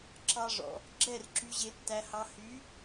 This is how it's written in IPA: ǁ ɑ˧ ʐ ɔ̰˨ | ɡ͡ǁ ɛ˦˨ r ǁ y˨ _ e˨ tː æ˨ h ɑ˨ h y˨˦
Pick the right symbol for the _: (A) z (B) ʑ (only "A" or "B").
B